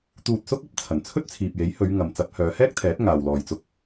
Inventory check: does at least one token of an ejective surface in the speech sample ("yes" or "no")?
no